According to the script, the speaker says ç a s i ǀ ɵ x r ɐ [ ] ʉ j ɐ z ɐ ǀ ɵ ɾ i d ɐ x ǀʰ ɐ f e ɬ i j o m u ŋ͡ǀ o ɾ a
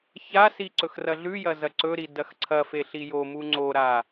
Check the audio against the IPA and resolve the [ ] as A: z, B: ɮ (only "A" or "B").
B